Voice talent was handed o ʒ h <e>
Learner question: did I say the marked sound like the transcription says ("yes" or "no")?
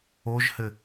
no